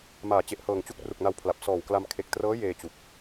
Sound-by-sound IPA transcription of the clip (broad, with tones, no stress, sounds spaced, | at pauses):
m aː˩˦ t͡ɕ e˨˩ ʔ h ɤː˨˩ ŋ t͡ɕ u˥˩ k̚ r u˨˩ k̚ n a˧ w pʰ l a˨˩ p̚ s ɔː˨˩ w k l a˧ m kʰ e˨˩ k̚ t r ɤː˦˥ j eː˧ t͡ɕ u˨˩ k̚